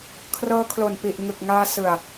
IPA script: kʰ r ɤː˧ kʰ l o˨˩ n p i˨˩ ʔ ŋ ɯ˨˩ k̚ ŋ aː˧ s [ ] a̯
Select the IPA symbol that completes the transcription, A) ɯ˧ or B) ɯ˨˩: B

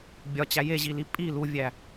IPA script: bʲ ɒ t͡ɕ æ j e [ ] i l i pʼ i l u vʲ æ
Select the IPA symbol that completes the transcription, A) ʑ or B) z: A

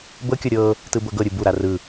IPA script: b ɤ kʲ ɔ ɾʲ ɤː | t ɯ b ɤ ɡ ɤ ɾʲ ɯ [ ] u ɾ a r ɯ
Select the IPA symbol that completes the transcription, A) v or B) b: B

